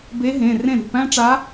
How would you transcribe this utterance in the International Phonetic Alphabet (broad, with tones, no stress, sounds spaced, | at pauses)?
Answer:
b e˧˥ ɦ ẽ˩˧˩ r ẽ˥˩ ɾ ṳ˩˧˩ p æ̃˥ ʈ͡ʂ a˧˥